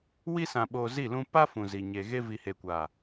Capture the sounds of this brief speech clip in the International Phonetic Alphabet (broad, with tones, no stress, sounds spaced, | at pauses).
w i˦ s ã˨ ɓ oː˨ z i˦˨ l ũ˦ p a˦ f ũ˨ z i˨ ɲ e˨ ɣ e˦ v i˨ h e˨ kʷ a˨